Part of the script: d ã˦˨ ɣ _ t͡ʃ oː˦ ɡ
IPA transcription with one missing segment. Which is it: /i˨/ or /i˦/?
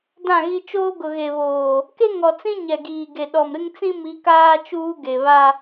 i˦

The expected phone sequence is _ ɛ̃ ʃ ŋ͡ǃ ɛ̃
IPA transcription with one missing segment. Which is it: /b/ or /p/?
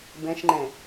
b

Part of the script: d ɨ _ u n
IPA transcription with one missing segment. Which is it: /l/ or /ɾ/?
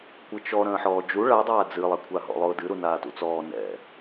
ɾ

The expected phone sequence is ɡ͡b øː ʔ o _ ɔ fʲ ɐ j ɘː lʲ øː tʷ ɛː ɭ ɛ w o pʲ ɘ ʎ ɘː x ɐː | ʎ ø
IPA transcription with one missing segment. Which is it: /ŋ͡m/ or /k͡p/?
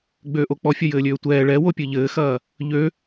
k͡p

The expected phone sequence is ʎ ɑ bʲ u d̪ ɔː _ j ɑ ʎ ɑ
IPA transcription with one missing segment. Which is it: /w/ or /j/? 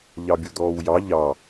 w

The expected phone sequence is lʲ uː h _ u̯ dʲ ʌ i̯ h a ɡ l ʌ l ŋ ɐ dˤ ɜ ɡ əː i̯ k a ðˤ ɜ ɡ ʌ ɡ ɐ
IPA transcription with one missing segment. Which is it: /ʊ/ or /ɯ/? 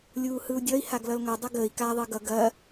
ɯ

